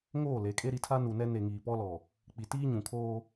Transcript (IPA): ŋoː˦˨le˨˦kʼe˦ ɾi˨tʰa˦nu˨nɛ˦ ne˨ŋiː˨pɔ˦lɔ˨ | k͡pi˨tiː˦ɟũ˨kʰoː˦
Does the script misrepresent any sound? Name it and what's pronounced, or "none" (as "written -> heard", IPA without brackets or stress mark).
ɟ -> ɲ